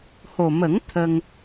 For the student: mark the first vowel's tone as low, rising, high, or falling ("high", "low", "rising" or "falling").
low